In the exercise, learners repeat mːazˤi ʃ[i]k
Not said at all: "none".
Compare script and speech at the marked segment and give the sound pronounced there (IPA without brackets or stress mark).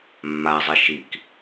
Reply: i